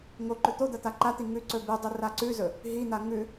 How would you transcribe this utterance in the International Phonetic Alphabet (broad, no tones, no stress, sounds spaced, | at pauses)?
ŋ o ǃ ɵ t̪ o d̪ ɐ t̪ a ǃ a t̪ i ŋ ʉ ǀ ɵ b ʉ dˤ ɨ r a ǀ ʉ z ɵ | ɦ i n̪ a ŋ ʉ